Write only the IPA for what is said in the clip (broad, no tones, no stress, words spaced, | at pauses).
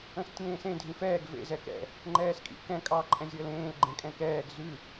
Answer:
ə̃stʲẽːsẽ dʱĩfɛːɡ vḛ zɛkɛ̰ | ŋ͡ǃɛːskʼḭ kɛ̃ kʼɑ ǃʼɛ̃zʲəːlẽːl ɡ͡ǃẽkʼɛ̃kɛːɡ zʉ